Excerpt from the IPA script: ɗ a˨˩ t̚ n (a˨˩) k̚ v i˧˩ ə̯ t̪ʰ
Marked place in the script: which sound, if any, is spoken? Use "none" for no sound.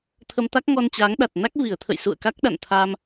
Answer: a˦˥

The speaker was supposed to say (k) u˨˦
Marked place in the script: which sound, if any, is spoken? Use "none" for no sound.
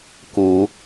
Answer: k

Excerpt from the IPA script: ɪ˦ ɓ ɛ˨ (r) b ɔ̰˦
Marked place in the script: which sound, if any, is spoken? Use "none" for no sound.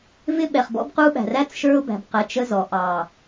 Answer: χ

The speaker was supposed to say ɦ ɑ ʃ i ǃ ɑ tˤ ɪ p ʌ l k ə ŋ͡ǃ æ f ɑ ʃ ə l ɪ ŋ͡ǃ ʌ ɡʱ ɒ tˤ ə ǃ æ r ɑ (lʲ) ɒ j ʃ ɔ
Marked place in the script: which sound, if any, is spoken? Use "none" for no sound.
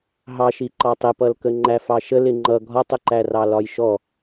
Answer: l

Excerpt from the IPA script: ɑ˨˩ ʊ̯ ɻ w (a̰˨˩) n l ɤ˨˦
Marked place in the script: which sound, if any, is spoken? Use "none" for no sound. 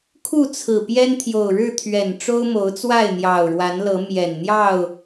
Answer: a˨˦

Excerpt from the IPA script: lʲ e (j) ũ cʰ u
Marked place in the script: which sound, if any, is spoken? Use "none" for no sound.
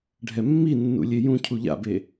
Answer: j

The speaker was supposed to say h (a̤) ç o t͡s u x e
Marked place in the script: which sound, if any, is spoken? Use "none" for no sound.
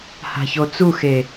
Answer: a̤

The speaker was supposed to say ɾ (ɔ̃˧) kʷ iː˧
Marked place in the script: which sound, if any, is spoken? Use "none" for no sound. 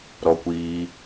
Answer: ɔ˧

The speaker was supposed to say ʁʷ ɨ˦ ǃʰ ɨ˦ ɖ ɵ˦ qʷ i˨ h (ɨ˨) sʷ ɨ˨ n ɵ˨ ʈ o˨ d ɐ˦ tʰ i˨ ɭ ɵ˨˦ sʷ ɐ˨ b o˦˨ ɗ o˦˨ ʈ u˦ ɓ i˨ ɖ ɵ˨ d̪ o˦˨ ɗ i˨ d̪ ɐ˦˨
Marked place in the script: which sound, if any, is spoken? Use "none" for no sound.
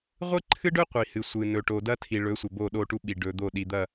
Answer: ɨ˨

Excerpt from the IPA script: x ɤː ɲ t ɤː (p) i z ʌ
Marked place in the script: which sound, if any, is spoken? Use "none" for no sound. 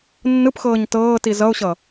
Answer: t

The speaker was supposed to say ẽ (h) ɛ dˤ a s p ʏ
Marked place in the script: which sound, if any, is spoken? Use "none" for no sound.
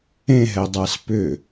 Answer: ɦ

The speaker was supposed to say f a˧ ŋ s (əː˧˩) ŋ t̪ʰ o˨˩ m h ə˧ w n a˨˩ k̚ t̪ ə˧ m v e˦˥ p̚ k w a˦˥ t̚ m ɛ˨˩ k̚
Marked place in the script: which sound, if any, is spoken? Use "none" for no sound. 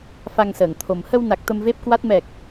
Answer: əː˧˩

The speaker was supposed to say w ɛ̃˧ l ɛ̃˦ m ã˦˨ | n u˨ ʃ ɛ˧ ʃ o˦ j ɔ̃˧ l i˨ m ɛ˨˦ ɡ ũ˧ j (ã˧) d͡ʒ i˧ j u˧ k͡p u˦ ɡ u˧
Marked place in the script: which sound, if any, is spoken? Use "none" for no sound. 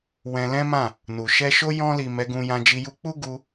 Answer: ã˧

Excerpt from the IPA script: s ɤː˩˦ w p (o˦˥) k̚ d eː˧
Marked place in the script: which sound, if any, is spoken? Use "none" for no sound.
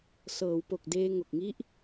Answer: o˨˩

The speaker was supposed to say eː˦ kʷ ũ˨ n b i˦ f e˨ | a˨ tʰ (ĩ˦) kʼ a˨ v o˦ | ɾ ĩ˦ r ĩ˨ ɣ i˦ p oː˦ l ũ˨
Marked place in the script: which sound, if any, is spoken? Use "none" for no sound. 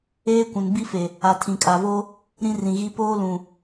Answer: ĩ˨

